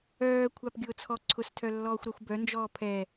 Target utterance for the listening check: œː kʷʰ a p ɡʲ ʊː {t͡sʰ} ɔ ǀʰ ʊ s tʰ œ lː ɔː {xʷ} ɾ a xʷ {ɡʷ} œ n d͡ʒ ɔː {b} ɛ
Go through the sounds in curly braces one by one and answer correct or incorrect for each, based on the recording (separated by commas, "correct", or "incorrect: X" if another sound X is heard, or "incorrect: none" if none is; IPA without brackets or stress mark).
correct, correct, incorrect: b, incorrect: pʰ